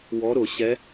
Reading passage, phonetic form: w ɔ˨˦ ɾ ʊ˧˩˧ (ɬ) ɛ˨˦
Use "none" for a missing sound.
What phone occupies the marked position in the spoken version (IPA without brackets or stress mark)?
ɕ